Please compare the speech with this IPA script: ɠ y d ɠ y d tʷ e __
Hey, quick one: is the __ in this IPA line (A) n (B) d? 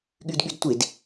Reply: B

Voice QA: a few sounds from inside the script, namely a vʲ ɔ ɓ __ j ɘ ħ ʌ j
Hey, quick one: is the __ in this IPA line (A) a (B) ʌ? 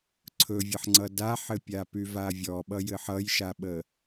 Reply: B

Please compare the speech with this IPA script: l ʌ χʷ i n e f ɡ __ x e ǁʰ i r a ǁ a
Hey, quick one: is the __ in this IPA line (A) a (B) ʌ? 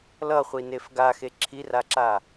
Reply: A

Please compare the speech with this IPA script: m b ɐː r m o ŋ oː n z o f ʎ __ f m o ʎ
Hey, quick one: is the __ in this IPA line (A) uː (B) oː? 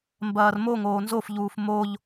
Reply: A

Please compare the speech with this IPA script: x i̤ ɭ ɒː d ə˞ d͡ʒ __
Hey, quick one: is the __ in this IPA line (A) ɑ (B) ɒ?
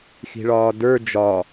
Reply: B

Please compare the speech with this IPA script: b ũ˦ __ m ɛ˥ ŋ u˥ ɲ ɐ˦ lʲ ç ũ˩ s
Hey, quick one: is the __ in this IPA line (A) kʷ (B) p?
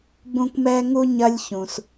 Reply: A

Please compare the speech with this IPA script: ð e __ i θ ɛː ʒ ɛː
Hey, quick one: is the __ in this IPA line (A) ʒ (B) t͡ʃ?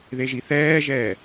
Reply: A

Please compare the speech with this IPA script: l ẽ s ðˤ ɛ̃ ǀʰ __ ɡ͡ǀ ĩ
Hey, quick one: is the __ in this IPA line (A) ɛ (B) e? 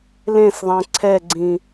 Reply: A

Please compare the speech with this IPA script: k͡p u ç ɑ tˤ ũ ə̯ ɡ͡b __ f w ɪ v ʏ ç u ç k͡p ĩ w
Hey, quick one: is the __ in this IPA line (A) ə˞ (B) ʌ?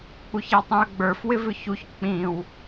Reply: A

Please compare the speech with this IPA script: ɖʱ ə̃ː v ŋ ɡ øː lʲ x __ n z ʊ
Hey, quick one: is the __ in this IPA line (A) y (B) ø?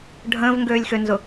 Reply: B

